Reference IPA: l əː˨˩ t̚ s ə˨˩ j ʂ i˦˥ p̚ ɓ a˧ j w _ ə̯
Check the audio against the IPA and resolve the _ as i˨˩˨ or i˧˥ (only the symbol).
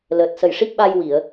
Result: i˨˩˨